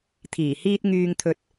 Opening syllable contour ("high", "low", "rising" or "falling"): low